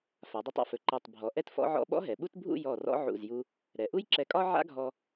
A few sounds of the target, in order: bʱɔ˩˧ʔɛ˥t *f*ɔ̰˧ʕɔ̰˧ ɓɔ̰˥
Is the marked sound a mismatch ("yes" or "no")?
no